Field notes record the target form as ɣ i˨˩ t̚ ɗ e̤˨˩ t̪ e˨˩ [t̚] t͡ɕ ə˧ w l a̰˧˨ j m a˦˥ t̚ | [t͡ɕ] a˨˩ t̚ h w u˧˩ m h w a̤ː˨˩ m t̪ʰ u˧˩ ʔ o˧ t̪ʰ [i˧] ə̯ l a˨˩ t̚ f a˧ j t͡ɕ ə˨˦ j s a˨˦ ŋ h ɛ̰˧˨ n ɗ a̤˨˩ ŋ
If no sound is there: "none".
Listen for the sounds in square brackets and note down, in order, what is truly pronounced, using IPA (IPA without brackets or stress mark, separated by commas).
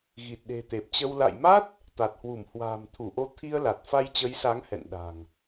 p̚, t̪, i˧